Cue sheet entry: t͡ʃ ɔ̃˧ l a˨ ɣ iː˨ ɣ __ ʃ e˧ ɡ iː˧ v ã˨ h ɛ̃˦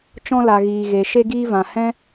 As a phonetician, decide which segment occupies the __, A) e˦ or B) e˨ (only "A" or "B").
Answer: B